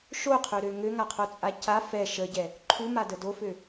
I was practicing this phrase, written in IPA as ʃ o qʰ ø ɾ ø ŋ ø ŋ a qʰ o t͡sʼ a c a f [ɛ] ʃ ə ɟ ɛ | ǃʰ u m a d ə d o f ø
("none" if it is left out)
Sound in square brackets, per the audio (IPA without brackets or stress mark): ɛ